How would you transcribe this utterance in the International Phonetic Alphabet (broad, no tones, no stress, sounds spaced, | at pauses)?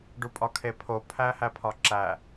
ɖ u pʼ ɒ kʰ e pʰ o pʰ æ h æ pʰ ɒ ǁ æ